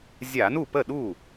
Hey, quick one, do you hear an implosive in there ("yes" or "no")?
yes